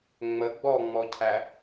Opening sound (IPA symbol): ŋ͡m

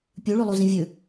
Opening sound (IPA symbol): pʲ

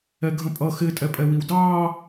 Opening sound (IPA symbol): ɛ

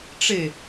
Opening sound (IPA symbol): ʈ͡ʂ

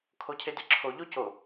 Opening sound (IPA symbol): kʰ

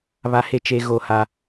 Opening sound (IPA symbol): β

